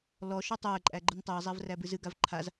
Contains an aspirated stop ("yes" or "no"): yes